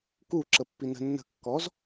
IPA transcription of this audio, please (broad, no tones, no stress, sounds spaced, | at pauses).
k u ǁ ə pː i n ə̤ nː ə̤ kː ɔ z